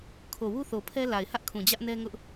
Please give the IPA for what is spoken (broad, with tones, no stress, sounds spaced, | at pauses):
kʰ o˨ w u˦ θ o˨ pʰ ɛ˦ l a˨ ɪ̯ h ä˦ ʔ kʰ ũ˨ d͡ʑ ä˦ ʔ n ɛ˦ ŋ ʊ˦ ʔ